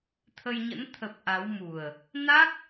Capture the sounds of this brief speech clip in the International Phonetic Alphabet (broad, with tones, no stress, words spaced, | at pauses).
t̪ʰə˧jɲə̰˧˥n t̪ʰə˨˩p̚ ʔa˨˦wmu˨˩ə̯ | na˦˥k̚